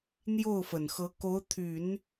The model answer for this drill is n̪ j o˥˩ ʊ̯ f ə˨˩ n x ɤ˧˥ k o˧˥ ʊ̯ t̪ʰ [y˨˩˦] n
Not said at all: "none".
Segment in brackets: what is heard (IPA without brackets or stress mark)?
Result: y˨˩˦